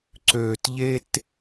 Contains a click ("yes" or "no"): yes